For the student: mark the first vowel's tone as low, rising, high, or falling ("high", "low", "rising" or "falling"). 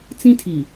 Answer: high